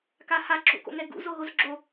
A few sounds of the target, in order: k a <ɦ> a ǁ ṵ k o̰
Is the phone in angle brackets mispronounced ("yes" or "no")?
yes